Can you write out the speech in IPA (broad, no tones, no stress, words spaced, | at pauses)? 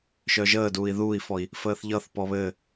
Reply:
ʃœʒəːduːi̯ ðuːi̯fɔi̯ | fəːθʎʌθpɔ βɘː